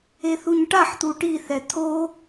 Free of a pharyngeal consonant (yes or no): no